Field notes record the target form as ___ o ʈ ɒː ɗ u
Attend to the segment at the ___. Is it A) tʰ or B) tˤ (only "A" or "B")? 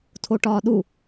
A